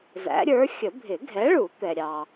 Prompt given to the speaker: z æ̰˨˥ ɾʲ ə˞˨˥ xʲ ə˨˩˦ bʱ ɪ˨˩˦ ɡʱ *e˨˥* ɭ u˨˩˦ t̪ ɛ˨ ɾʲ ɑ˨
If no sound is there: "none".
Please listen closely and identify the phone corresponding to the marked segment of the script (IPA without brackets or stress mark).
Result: ɛ˨˥